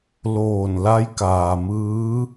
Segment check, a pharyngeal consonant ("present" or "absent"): absent